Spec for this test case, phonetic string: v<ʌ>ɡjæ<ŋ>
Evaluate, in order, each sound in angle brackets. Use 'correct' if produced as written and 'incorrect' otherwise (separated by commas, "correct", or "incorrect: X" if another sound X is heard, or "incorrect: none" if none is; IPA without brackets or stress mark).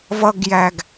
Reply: correct, incorrect: ɡ